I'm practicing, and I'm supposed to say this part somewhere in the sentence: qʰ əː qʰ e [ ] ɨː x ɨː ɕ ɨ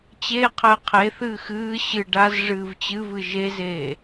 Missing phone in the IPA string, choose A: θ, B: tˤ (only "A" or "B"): A